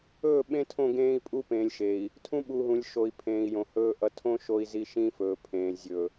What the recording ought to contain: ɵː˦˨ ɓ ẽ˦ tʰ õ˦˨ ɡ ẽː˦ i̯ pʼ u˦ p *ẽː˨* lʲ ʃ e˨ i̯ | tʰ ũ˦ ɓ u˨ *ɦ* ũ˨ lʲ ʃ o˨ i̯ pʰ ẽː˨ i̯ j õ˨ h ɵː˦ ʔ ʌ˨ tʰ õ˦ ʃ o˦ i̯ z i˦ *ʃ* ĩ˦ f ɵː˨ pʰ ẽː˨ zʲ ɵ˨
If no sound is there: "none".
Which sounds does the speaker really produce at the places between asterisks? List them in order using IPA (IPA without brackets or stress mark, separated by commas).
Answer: ẽː˨, ɦ, ʃ